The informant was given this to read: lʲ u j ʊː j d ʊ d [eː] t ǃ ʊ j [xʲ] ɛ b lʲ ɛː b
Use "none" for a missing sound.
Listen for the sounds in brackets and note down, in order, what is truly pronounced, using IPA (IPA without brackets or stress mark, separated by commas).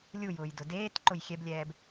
eː, xʲ